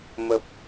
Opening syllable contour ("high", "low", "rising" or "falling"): low